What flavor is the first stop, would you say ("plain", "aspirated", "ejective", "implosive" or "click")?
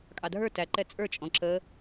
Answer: ejective